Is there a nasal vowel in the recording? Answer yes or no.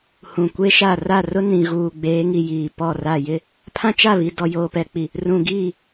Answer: yes